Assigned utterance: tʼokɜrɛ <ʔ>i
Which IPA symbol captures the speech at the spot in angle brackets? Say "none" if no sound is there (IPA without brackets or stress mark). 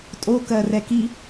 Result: k